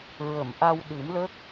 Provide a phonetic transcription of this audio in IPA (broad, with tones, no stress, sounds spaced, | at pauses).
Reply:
ɹ ə˨˩˨ m ʔ a˧ w ɗ ɨ˨˩˦ m l ə˦˥ k̚